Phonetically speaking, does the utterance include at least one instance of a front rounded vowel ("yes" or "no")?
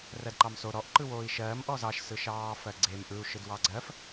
no